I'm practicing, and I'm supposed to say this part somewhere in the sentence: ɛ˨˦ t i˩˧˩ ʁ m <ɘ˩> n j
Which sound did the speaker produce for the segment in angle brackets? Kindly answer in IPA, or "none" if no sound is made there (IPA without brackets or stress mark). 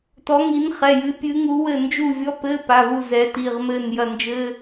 ɘ˦˨